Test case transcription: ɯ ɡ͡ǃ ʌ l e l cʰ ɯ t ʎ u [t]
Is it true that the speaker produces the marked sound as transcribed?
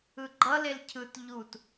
yes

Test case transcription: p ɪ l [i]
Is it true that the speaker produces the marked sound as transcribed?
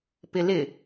no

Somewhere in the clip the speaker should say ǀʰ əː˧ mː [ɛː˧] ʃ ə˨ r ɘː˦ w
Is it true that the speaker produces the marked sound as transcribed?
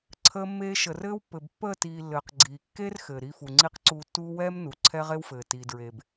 no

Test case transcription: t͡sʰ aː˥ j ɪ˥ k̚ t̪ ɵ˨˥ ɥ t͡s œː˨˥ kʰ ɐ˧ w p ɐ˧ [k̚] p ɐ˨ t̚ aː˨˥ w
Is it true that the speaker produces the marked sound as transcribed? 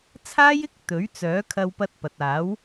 no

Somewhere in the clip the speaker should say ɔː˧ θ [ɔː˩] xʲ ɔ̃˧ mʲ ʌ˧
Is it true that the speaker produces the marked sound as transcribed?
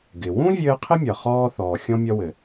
yes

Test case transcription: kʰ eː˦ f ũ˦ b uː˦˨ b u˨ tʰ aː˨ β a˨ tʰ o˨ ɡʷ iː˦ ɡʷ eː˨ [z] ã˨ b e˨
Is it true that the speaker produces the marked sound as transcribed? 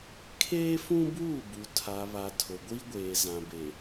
yes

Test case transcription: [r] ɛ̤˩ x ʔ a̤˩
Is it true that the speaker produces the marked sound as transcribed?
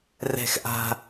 yes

